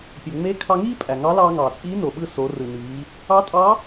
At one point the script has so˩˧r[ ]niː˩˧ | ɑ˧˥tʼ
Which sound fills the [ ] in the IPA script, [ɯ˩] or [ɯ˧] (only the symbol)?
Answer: ɯ˩